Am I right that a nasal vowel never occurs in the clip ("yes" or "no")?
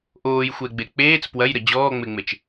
yes